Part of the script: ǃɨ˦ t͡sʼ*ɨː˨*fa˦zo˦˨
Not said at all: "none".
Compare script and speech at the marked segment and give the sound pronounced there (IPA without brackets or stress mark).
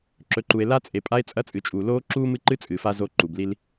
ɨː˨